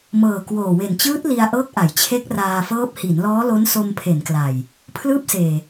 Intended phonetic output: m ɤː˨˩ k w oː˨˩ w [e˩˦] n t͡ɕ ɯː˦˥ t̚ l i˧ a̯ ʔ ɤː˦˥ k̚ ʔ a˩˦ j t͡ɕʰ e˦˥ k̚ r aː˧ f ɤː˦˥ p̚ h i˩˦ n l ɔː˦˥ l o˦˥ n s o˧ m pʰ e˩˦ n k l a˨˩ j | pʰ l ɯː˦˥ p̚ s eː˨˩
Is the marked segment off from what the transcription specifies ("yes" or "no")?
yes